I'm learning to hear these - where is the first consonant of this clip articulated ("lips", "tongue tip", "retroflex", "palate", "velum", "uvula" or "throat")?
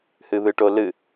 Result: throat